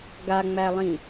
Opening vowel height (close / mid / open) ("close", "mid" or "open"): open